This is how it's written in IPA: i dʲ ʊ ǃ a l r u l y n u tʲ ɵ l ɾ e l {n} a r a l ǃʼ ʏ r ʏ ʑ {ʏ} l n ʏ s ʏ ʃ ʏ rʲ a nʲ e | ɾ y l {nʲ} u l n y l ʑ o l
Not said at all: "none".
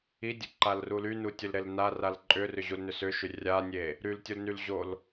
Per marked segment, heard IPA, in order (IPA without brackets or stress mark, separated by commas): n, u, tʲ